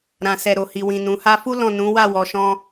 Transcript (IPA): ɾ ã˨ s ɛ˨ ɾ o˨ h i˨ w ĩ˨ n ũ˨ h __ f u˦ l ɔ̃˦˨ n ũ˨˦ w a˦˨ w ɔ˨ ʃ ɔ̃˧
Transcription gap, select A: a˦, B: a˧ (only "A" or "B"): B